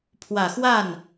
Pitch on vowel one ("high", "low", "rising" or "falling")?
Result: low